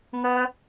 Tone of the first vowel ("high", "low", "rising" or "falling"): high